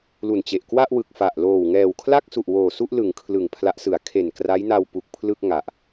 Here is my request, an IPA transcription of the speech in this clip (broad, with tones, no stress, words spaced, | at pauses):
lu˨˩nt͡ɕe˨˩ʔ kwa˥˩ʔwɯ˨˩k̚fa˨˩ʔloː˨˩w ŋɛː˨˩wkʰla˥˩k̚su˨˩ʔ woː˨˩su˥˩ʔlɯ˩˦ŋ kʰlɯ˨˩ŋ pʰla˦˥ʔsɯ˩˦a̯ kʰe˨˩nkra˦˥jna˧wpu˨˩k̚ pʰlɯ˥˩k̚ ŋa˨˩ʔ